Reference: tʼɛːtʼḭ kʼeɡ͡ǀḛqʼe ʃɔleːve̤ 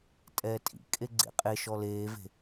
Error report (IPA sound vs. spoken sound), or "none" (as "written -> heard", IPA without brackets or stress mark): none